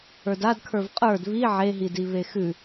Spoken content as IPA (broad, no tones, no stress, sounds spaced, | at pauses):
ə˞ d a d kʰ ə˞ v qʼ ə˞ d β i ʕ e ɦ i d i β e x ʉ